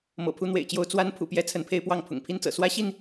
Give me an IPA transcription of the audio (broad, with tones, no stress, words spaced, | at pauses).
mɤ̰˨˩pʰu˨˦n̪wḛ˨˩ɪ̯t͡ɕjo˨˦ʊ̯ t͡swa˨˦n pʰṵ˨˩pjɛ˦ t͡sʰə˨˦npʰe˦ɪ̯pwɑ˥˨ŋ pʰʊ̰˨˩ŋpʰi˦nt͡sɤ̰˨˩ swä˦ɕi˥˨n